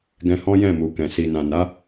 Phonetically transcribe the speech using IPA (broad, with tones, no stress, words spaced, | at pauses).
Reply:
ɡɛ̃˧hɔ̃˦jɛ̃˦˨mu˨ kɛ̃˨ si˨nã˨ na˨˦